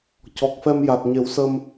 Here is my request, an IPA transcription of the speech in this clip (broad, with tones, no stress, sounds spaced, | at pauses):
c ɔ˨˩ k̚ f ɛ˧ m j a˨˩ t̚ ɲ e˨˩˦ w s ə˧ m